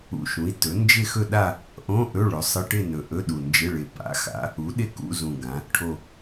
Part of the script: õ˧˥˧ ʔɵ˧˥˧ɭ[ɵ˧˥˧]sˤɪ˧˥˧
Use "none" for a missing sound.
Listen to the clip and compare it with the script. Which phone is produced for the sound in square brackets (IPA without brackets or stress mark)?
ɵ˩˧